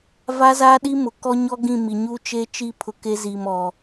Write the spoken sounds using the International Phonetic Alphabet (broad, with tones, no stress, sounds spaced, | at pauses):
v a˦ z aː˦ ɗ i˦ m ʊ˨ k ɔ˦ ɲ ɔ˦ ɡ ĩ˦˨ m i˨ ɲ u˦ t͡ʃ e˦ t͡ʃ i˦˨ pʰ ʊ˨ k e˦ z iː˨ m ɔ˨